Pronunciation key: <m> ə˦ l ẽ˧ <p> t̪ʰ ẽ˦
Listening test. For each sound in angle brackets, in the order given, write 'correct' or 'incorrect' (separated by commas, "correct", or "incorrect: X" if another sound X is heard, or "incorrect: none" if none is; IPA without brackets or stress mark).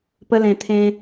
incorrect: p, incorrect: none